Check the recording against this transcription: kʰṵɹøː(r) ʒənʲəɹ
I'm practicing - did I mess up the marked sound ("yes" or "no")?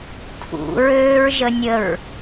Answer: yes